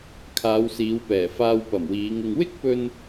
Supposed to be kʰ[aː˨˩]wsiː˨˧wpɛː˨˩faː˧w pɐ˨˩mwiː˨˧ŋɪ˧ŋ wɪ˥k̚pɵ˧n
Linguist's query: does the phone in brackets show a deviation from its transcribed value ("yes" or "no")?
yes